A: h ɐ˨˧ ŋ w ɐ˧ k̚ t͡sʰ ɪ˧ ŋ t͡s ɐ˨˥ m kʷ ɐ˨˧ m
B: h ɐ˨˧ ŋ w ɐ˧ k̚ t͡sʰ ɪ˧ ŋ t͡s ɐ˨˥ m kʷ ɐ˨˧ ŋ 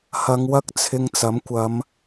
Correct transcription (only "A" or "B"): A